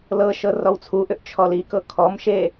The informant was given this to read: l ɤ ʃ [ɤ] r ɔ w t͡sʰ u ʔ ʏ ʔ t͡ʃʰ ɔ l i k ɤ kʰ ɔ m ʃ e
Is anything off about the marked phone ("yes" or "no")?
no